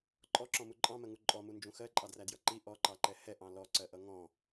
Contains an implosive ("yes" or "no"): no